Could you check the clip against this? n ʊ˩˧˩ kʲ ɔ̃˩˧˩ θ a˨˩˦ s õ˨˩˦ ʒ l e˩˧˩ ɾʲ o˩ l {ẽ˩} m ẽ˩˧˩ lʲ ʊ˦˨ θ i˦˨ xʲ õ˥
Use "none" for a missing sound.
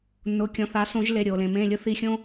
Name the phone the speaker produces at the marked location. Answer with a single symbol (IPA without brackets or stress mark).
ẽ˩